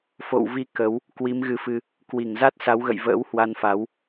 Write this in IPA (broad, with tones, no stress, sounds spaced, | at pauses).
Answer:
f o̰˧˨ w v i˧ k ə˨˦ w | k w i˨˦ m ɣ ɨ˨˦ f ɨ˧ | k w i˧˩ ŋ z a˦˥ t̚ s a˨˦ w ɣ ə̰˧˨ j v ə̰ː˧˥ w h w a˧ n f a˨˦ w